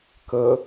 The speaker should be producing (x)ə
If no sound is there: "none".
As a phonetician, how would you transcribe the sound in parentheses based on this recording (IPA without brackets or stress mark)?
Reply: k